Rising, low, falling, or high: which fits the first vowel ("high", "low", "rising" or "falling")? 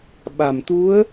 low